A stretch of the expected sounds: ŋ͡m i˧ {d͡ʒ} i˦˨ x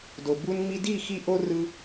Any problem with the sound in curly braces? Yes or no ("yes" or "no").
yes